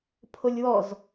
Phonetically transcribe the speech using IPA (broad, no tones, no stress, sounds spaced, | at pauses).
pʰ o lʲ w ɔ z